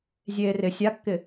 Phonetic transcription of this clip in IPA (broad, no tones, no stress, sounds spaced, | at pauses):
zʲ eː r ɪ sʲ a kː ɪ